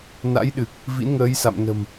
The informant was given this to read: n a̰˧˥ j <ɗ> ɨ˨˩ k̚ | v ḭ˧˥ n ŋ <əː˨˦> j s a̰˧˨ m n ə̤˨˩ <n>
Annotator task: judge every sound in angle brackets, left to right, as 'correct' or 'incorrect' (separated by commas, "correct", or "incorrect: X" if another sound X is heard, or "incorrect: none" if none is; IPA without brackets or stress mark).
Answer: correct, correct, incorrect: m